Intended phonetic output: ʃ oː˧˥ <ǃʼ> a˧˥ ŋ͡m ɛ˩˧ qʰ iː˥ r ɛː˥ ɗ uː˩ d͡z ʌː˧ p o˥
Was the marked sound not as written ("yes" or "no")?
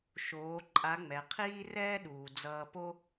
no